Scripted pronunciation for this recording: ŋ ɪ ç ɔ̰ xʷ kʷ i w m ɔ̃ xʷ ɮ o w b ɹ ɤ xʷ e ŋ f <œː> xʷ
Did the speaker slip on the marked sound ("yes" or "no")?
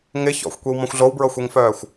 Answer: no